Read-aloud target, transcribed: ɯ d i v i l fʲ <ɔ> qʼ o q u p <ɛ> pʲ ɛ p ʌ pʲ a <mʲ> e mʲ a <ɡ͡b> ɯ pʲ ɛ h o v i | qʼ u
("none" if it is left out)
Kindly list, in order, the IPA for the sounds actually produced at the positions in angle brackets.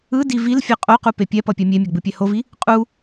ʌ, e, mʲ, ɡ͡b

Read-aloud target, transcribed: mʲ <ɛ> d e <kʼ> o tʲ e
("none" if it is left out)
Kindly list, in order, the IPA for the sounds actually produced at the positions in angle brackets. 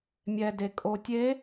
ɛ, kʼ

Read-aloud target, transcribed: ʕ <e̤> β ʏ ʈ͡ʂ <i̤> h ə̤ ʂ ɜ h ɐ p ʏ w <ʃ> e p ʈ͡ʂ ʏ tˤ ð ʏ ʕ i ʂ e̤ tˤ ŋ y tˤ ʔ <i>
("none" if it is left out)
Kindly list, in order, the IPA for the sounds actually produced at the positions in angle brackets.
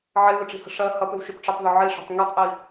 e, i̤, ʃ, i

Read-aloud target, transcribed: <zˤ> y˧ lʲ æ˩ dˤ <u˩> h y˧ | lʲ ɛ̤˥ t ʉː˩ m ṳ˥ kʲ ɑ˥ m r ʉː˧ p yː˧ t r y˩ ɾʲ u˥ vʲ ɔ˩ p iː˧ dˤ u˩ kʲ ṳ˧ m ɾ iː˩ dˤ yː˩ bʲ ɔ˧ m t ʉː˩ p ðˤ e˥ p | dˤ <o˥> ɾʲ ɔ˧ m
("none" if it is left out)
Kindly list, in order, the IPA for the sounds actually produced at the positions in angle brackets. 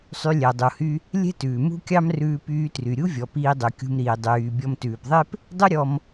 sˤ, u˩, u˥

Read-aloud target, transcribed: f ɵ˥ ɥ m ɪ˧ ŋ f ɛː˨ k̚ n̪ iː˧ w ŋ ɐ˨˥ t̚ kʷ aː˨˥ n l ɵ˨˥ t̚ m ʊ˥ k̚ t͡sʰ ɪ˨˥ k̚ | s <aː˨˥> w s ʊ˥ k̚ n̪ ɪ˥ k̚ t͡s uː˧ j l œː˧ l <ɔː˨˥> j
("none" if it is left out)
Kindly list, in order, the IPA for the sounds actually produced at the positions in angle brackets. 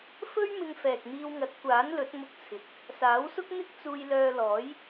aː˨˥, ɔː˨˥

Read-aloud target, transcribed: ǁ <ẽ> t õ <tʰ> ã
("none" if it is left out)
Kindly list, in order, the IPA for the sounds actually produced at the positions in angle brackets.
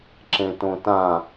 ẽ, t

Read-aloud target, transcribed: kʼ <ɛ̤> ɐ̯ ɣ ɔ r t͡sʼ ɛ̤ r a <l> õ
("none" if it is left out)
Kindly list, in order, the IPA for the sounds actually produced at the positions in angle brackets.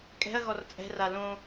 ɛ̤, l

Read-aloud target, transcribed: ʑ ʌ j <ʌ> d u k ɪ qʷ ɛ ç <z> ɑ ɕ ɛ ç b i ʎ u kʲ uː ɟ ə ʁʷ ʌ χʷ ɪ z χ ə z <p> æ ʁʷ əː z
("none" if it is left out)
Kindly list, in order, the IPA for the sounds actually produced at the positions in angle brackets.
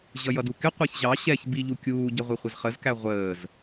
ʌ, ʑ, k

